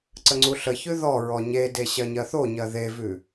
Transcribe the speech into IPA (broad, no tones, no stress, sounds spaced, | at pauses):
ǀ ə ŋ͡ǀ u ɬ ə ç ʉ ð ɔ ɹ ɔ ɲ e d e ɕ ɜ ɲ ɜ θ o ɲ ɜ ð e v ʉ